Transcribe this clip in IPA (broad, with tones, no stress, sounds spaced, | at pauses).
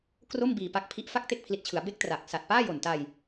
k r o˥˩ m b iː˧ p a˦˥ k̚ pʰ i˦˥ ʔ f a˥˩ k̚ t e˥˩ k̚ pʰ l i˨˩ t̚ t͡ɕʰ ɯ˩˦ a̯ b e˦˥ k̚ t r a˨˩ k̚ s a˨˩ t̚ p aː˥˩ j o˨˩ n t a˧ j